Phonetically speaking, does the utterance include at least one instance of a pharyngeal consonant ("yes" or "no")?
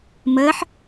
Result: yes